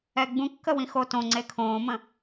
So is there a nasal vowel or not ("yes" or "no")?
yes